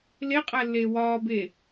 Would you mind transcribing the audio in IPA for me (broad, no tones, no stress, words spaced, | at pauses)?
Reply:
leqʼælːeː wɒːbe